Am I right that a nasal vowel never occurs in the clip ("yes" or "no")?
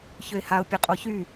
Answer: yes